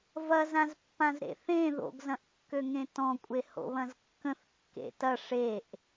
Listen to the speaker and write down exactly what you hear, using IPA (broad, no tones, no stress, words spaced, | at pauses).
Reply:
vɐzãzpːãz ɾḛθẽ ðo̰ɡzɐ̃ʔkːøŋẽ tɔ̃kʷʼe ho̰βɐ̃zkːə̃θ kːḛtɐ ʂeʔ